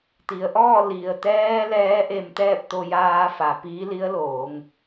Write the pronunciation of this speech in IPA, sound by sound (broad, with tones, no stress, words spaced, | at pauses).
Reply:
t̪i˩˧ə̯ʔɔː˥˨ li˩ə̯t̪ɛː˧ lɛː˧˥ʔe˧m t̪ɛː˥˨p̚t̪o˧jaː˧fa˩ piː˧˥li˧˥ə̯loː˩˧ŋ